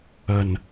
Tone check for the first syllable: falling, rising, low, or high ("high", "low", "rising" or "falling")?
low